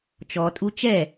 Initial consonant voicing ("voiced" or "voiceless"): voiceless